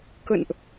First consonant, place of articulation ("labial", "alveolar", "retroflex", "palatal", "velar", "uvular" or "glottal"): velar